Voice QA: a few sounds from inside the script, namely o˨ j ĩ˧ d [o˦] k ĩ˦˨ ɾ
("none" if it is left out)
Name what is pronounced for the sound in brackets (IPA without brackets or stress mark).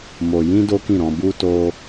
o˦